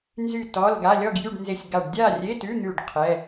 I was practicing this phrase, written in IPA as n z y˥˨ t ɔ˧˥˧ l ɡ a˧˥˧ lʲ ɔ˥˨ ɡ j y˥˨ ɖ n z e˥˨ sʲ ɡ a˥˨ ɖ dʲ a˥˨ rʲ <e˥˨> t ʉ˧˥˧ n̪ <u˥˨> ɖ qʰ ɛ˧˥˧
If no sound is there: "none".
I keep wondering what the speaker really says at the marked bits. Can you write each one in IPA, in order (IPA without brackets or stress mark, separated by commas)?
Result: e˧˥˧, ʉ˥˨